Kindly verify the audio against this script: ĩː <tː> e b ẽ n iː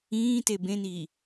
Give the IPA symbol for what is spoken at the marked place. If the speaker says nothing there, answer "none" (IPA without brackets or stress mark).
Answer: t